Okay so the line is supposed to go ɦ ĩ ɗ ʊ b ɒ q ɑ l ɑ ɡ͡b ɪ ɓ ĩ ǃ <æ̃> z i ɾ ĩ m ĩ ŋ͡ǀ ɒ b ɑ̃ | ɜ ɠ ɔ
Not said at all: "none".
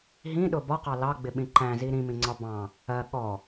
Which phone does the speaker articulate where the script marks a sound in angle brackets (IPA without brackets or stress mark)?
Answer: æ̃